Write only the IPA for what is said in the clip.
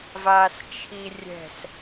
v aː s t͡ʃʰ i rʲ ɛ̤ s

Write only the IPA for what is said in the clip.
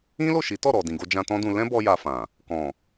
ĩ˦ l o˦˨ ʃ i˨˦ t ɔ˦˨ ɾ ɔ˨ d ĩ˨ ɡ o˧ d͡ʒ ã˧ t ɔ̃˦ d ũ˧ l ɛ̃˦ b ɔ˦ j a˧ f ã˨ | k ɔ̃˨

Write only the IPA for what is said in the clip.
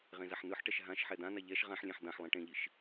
ʁ ẽ z a ħ n ɯ ħ ʈ ɛ ʃ ɦ ã ʃ ħ ɛ d̪ ã n̪ a ʎ ɛ ʃ ʁ ã ħ lʲ ẽ ħ d̪ ã ħ lˠ ĩ ʈ ẽ ʎ i ʃ

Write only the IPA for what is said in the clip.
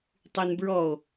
tˤ y n b ɹ ɔ o̯

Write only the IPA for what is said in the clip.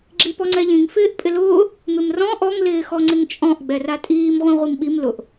ɡ͡ǁ i p ɔ ŋ͡ǀ ɛ ʎ ĩ ŋ f ɪː ʔ pʼ ɪ l ʊː | m ɪ m r ɔ̃ ʔ ɔ ŋ l ɪː x ɔ ŋ͡ǀ ɪ ŋ t͡ʃʼ ɔ̃ ʔ ɡ͡b ɛ r a tʼ iː m ʁʷ ĩ ʁʷ i m ɓ i m l ʊ ʔ

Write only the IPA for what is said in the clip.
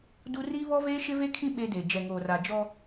d u˦ r i˦ β ɔ˦ v eː˦ ʃ ɪ˦ v e˦ kʰ ĩ˦ ɓ e˦ d e˨ d͡ʒ ɛ˨ ŋ oː˨ r a˨ d͡ʒ ɔ˦

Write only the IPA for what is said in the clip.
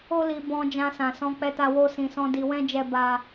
o˦ l i˧ b ɔ̃˧ d͡ʒ ã˧ s ã˨ s ɔ̃˧ k͡p ɛ˧ t a˧ w o˦ s ĩ˧ s ɔ̃˦ d i˧ w ɛ̃˦ d͡ʒ ɛ˦ b a˦

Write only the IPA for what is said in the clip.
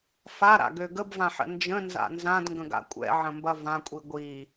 f a ɾ a̰ ɡ ø ɡ ə b v ã ħ ə̰ n d͡ʒ ə̃ n z a̰ n z ã d ŋ ɡ ə̃ ɡ a̰ kʷʼ ɛ̰ ʕ ə̃ m b ɐ v ã kʷʼ i ɡʷ i

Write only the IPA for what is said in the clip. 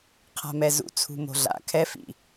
qʰ a̤ m ɛ z ṵ t͡sʰ ṳ m o̤ ɮ a̰ kʰ ɛ f ḭ

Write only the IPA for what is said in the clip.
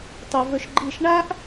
tˤ i˧ v ɵ˦ ʃ ɡ͡ǃ i˦˨ ʃ ɳ a˦ ʔ

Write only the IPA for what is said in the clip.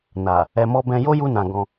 n a˨ | ɛ˨ m ɔ˧ b ɛ̃˧ j o˦ j u˧ n ã˨ ɡ ɔ̃˧

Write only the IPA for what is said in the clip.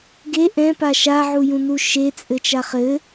ɡ e ʔ ɛ̃ p a ʃ a ʕ u j ũ n u ʃ e t͡sʼ ɘ t͡ʃ a χ ɘ

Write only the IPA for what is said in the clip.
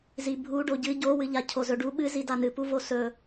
z i bʱ u ɖ o ɟ ɨ ɟ o w ɨ ʎ a cʰ o z ɵ ɖ u ɓ ɨ z i d a n ɨ p u v o s ɵ

